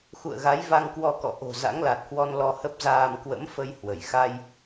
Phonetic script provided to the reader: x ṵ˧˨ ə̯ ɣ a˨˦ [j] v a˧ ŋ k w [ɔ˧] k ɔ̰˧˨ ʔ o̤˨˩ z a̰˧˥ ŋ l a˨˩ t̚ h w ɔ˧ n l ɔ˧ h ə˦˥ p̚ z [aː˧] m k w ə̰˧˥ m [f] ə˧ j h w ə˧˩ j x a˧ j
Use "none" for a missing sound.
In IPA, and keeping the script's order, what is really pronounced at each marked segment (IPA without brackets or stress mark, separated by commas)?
j, ɔ˧, aː˧, f